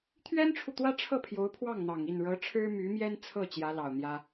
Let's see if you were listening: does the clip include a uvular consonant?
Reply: no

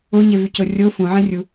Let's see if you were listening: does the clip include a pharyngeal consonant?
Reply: yes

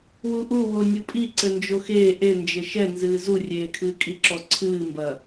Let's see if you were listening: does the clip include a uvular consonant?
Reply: no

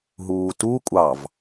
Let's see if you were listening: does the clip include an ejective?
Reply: yes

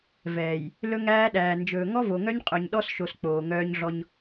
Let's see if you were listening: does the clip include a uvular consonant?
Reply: yes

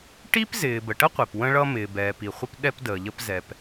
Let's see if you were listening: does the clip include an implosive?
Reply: yes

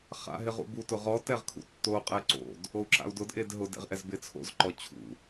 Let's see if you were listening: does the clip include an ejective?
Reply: yes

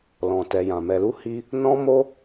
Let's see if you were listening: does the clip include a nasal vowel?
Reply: yes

